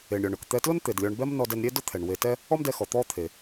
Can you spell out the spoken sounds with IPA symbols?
e˩ɳɾʲɔ˩ɳ ʊ˩kt̪ɛ˧tlʊ˥n t̪e˩dlʲɔ˧ɳ bɛ˥mnɔ˧dɛ˧nɾʲe˥ dʊ˥t̪ʰɛ˩ɳwe˧ tɛ˥ | ɔ˥mdɛ˧xɔ˩ t̪ɔ˥t̪ʰe˩

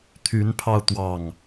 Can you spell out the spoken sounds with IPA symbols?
t̪ʰy˨˦npʰɑ˧ʊ̯ t̪wɑ˨˩ŋ

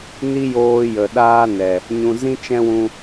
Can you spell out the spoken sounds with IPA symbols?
ni˦joː˧jə˨ ɗaː˦nɛ˨ | ɲũ˨zĩ˦t͡ʃɛ̃˦ wũ˧

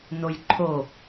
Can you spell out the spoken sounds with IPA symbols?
nojǃʰo

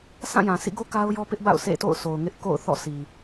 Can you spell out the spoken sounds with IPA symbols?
sã˦˨jã˨sʰḭ˦˨ɡo˦ ka˦ʊ̯jɔ˦pɪ˦ʔba̰˦˨ʊ̯ sʰḛ˦˨to̰˦˨ʊ̯sʰo˨ʊ̯ŋɪ˦ʔ ko̰˦˨ʊ̯θɔ̰˦˨si˨

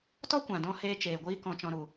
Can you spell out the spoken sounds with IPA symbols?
tɔ˦kʷã˨dɔ̃˧ heː˧t͡ʃeː˨ɡʷiː˧ kɔ̃˨t͡ʃɔ̃˨ɾu˨

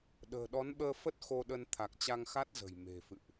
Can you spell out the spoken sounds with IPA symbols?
ɗə̤ː˨˩ɗɔ˨˦nɓəː˧ fə˦˥t̚ xo˧ɗə˧n t̪ʰa˨˩k̚t͡ɕa˧ŋxa˦˥t̚zə̤˨˩j me̤˨˩fɨ̰˧˨ʔ

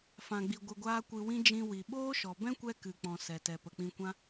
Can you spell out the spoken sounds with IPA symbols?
fã˨ɡ͡bi˨ ɡʷɨ˨ɡʷaː˧ kʷɨ˧wĩ˦ d͡ʒĩ˧wi˨ ɓoː˦ʃɔ˨bɛ̃˦ kʷɛ˦kɨ˨k͡pɔ̃˨ sɛ˨tɛ˨ pə˨k͡pĩ˧kʷã˦

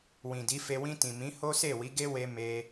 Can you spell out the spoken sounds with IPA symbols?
wĩ˨di˨˦fe˧ wĩ˧tĩ˨mĩ˨˦ ho˦ se˦˨wi˨˦ ɡe˦we˧ me˧

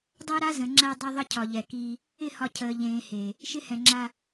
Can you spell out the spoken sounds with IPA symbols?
dˤæ˦ɾa˦zə̃˨ ŋ͡ǁæ˦dˤe˦ðˤə˦cʰɒ˨ ʎɛ˨ki˦ | ɪ˦˨ hɒ˦cʰəː˨ ʎẽː˨ he˨ | ʃɪ˦hɛ̃˨ŋ͡ǁa˦

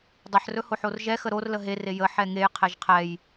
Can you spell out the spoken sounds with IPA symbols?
dˤəħrɵ hoħorʒɛxə ɾor ləɦere jə ħɛŋejqʰeʒ qʰɛj

